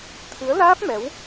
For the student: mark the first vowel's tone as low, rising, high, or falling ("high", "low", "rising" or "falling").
rising